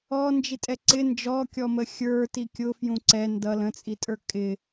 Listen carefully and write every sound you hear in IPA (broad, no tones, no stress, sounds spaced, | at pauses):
ɔ n d͡ʒ i tʼ ɛ ǀ ɪ n d͡ʒ ɔ kʲ ɔ m ə xʲ ə˞ t i kʲ ʊ f j ũ ǀ ɛ n d ʌ l ə̃ t͡sʼ i tʼ ə˞ kʼ ɪ